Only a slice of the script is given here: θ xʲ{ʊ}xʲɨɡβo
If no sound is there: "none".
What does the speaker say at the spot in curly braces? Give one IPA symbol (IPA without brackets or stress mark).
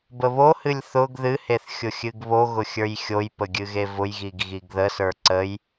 ʊ